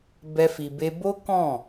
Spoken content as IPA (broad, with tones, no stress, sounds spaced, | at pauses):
b ɛ˦ f i˧ b e˦ b o˦ k ɔ̃˦˨